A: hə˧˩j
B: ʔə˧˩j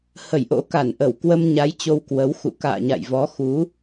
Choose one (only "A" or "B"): A